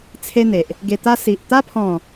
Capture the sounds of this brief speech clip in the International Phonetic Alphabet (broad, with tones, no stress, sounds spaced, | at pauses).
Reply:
t͡sʰ e˦ n̪ e˨ ʔ | ɡ e˧ t̪ a˦ s i˨ ʔ t̪ a˦ pʰ ɔ̃˥˧